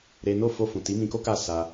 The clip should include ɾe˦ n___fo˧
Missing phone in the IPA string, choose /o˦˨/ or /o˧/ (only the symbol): o˦˨